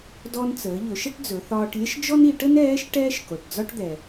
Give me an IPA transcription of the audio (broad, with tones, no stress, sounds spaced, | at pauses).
d ɔ˧ n t͡s əː˩˧ ʎ ɵ˩˧ ʃ ə˥ ʈ d͡z ɵ˩˧ θ ɒː˧ ʈ lʲ ə˥ ʃ d͡ʒ ɔ˥ n i˩˧ ʈ ə˥ n ɛː˧˥ ʃ ʈ ɛː˥ ʃ k o˩ ʈ d͡z ɒ˥ ʈ d̪ ɛ˩